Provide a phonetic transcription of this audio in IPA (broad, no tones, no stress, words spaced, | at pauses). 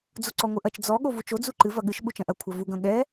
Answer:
d͡zoǀɔŋʷɨʔɐt͡ʃ d͡zɔ ɠovut͡ʃo d͡zuǃɨ vɐɠɨʃ ɓut͡ʃɐ̃ʔɐ kʷʰɐvu ɡɐ̃ɠɛ